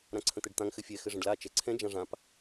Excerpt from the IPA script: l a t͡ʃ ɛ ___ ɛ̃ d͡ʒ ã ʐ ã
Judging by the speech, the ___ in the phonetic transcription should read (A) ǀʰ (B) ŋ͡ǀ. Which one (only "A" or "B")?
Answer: A